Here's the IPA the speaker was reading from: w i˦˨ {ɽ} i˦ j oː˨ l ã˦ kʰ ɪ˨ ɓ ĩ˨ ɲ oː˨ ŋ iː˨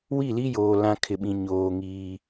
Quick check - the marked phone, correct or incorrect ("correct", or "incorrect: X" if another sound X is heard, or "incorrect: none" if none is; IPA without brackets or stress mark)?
incorrect: l